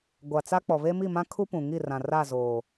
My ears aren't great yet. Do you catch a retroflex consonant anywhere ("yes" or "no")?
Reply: no